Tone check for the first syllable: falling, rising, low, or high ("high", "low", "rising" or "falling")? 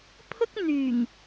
high